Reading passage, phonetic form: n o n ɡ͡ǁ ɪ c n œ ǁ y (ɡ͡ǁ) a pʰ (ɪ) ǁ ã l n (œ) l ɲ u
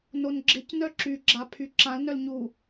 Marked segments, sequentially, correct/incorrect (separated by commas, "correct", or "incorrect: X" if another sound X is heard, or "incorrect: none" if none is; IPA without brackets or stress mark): correct, incorrect: y, correct